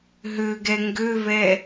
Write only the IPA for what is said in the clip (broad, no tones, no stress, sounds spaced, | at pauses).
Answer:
ɦ ø ɡ ɛ ŋ ɡ ø v ɛ